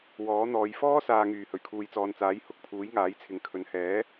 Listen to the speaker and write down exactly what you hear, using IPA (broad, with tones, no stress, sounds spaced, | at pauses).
w ɔː˨˥ n̪ ɔː˨˧ j f ɔː˥ s aː˨ ŋ yː˨˩ h ɵ˨˩ ɥ kʰ uː˨ j t͡s ɔː˨ n t͡s aː˨˥ j h ʊ˧ k̚ pʰ uː˨˥ j ŋ aː˨˥ j t͡sʰ ɪ˨ ŋ kʰ ɵ˨˧ n h ɛː˨˥